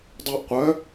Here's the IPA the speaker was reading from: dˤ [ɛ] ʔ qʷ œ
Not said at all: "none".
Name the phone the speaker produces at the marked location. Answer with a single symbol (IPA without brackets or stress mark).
œ